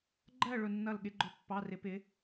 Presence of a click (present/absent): present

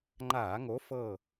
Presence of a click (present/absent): present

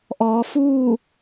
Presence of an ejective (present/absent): absent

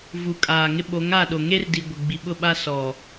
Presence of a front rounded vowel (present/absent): absent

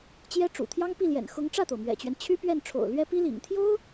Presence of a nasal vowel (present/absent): absent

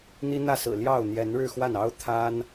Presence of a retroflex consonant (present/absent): present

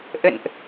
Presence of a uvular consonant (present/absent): absent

